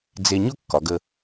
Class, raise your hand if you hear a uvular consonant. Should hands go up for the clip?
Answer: no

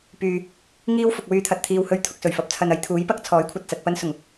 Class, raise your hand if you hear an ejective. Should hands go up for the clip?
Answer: no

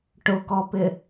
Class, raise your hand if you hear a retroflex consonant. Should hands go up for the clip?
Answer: yes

